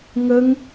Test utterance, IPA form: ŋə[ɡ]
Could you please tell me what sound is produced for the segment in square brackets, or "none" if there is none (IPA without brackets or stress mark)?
ŋ